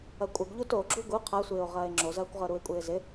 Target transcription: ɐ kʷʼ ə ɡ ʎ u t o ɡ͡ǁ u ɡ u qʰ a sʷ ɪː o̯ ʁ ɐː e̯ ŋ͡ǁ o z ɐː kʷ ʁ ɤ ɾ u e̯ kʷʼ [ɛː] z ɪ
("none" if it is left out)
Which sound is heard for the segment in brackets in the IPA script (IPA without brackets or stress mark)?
ɪː